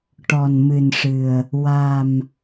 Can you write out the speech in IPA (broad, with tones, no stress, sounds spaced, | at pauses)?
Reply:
ʈ ɔ˨˩ n m ɨ˨˩ n ʂ ɨ˨˩ ə̯ | w a˨˩ m